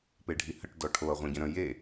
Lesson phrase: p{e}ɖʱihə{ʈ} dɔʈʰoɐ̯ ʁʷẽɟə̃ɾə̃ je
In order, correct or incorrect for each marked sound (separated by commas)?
correct, correct